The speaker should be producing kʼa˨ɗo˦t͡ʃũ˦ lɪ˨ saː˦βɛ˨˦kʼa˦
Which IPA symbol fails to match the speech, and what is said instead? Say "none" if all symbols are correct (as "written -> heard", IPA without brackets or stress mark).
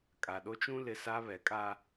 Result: none